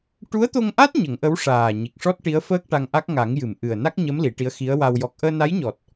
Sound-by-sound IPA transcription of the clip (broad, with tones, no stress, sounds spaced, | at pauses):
ʈ u˧˥ ə̯ t̪ o˧ ŋ ʔ a˦˥ t̚ ɲ ə˨˩˦ ŋ ʔ ə˧˥ w ʂ aː˨˩ ɲ i˨˩ k̚ ʂ ɔ˦˥ t̚ ʈ i˧˥ ə̯ f əː˦˥ k̚ ʈ a˧ ŋ ʔ a˦˥ k̚ ŋ a˨˩˦ ŋ j ɨ˨˩˨ m ʔ ɨ˨˩ ə̯ n a˦˥ k̚ ɲ ə˧˥ m l i˨˩˦ ʈ i˧˥ ə̯ x i˧˥ ə̯ w a˧ w j ɔ˨˩ k̚ ʔ əː˧ n a˧˥ j ɲ ɔ˨˩ t̚